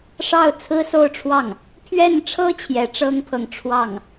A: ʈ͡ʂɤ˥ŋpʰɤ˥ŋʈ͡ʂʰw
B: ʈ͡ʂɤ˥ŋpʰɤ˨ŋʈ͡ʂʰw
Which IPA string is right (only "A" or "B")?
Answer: B